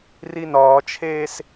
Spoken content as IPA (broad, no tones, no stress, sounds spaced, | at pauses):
r i n ɒː t͡ʃʰ eː s